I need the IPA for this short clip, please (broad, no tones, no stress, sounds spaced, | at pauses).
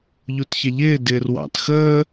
ʎ u t ç ɛ ʎ ɪː d ɪː r w ɑ̰ t x əː